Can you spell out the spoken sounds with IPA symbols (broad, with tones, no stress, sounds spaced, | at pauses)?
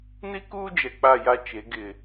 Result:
n i˦ k uː˦ d͡ʒ ɛ˨ k͡p a˦˨ j a˦ t͡ʃ e˨˦ ɡ ɪ˨